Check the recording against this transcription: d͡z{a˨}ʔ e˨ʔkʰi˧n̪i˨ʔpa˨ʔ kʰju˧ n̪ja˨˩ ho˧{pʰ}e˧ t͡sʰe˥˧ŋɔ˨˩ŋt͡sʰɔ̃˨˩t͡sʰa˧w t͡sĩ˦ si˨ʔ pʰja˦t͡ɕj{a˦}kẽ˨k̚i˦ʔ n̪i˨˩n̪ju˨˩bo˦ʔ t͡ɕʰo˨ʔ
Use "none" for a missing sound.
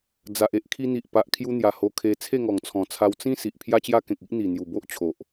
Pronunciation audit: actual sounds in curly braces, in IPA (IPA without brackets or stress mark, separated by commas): a˨, kʰ, a˦